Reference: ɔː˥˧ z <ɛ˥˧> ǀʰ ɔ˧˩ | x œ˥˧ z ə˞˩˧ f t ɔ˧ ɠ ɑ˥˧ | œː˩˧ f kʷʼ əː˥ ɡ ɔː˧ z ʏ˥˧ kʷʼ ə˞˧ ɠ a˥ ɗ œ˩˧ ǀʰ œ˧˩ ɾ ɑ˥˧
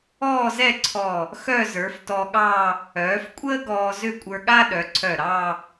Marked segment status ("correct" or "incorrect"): correct